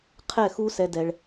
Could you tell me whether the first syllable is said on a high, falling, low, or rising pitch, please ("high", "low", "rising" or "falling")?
falling